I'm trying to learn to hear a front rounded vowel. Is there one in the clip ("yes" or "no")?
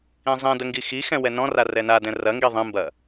no